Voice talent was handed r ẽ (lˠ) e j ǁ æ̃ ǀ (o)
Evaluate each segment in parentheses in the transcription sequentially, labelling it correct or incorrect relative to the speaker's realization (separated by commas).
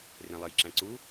correct, incorrect